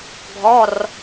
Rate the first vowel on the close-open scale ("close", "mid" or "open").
mid